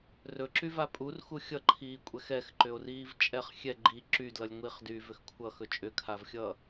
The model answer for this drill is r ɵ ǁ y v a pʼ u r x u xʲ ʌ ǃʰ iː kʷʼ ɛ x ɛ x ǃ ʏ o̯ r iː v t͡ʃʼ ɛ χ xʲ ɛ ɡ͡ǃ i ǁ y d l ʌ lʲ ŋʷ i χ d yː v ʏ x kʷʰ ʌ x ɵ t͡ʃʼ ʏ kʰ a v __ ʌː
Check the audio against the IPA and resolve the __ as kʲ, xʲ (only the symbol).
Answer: xʲ